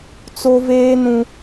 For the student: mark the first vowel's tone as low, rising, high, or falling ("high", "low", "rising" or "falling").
high